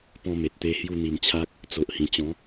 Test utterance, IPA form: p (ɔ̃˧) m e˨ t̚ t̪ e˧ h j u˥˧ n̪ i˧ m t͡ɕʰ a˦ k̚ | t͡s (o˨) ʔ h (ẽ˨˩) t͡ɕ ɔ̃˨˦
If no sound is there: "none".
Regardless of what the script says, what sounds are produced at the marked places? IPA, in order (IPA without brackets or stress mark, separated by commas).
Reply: ɔ̃˧, o˨, ĩ˨˩